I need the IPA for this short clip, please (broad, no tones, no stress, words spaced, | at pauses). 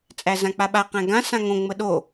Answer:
t͡sʼæzãk͡paɓa qæ̃ɡã sãŋõ ŋ͡məɗo